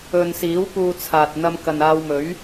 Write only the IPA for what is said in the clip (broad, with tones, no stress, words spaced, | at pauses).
ɵ˨n siː˨˥wpuː˧t͡sʰaː˨t̚ n̪ɐ˧mkɐ˨naː˧wmɵ˨˥ɥ